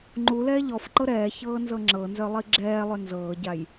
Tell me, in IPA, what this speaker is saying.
ŋ͡ǃ u l ɛː ʎ ɔ f ǃ ɤ ɾ ɛː ç ɤː n z ɤ ŋ͡ǁ ɤ n z œ lˠ i ɡ͡ǁ ɛː lˠ ʏ n z ɤː ɟ a j

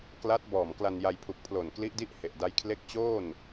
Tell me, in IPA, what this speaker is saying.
k l a˦˥ t̚ b ɔː˨˩ m k l a˧ n j a˧ j pʰ u˨˩ k̚ pʰ l o˨˩ n k l i˦˥ ʔ d i˥˩ ʔ h e˨˩ ʔ d a˦˥ j kʰ l e˥˩ k̚ t͡ɕ oː˥˩ n

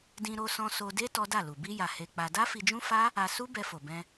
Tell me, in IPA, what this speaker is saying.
d ĩ˧ ɾ o˧ s ɔ̃˧ s o˧ d e˦ t ɔ˦ d a˦˨ l u˨ b i˧ j a˨ h e˧ k͡p a˧ d a˦ f i˧ d͡ʒ ũ˦ f a˦ | a˧ s u˦ b ɛ˧ f o˨ b ɛ̃˧

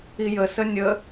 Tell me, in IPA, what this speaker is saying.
i j ə s ə nʲ ə

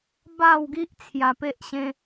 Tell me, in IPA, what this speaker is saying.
b a˥˧ w ɡ i˦ ʔ t͡sʰ j a˨˩ p e˦ ʔ ɕ ẽ˧

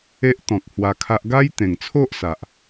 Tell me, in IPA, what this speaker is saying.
e˦ ʔ t̪ ɔ̃˨ k̚ h w a˧ kʰ a˦ ʔ ɡ a˦ j t̪ ẽ˨˩ ŋ t͡sʰ o˦ ʔ s a˨ ʔ

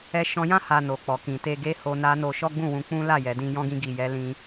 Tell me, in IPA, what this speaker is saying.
ɛ˧ ʃ ɔ̃˧ j ã˦ h a˧ n o˨ k͡p ɔ˨ k ĩ˨ t e˧ ɡ e˦ h o˧ n a˦ n o˧ ʃ ɔ˦ ɡ͡b ũ˦˨ w ũ˧ k͡p ũ˦ l a˦˨ j ɛ˨ d ĩ˧ j ɔ̃˧ ɡ ĩ˧ ɡ i˨ j ɛ˧ l ĩ˧

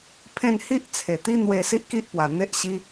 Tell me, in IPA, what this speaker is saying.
pʰ ẽ˥˧ n h i˦ ʔ t͡sʰ e˨˩ t̪ i˦ n̪ w e˧ s i˦ ʔ k i˦ ʔ p w a˨˩ n̪ e˦ ʔ ɕ i˦

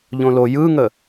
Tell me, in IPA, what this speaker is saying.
ʎ õ l o j ɯ ŋ ə

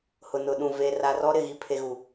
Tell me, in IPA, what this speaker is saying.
h ʊ˨ n ʊ˨ ɗ ũ˨ v e˨ r a˨ r ɔ˦ ɾ ɪ˦˨ ɣ i˨ pʰ e˨ ɣ u˨

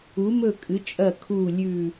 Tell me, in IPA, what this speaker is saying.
u˨˥ m ɵ˦˨ kʼ ɨ˨˥ t͡ʃʼ ɐ˦˨ kʰ u˦˨ lʲ ʉ˦˨

